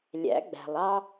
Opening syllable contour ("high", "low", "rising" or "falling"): rising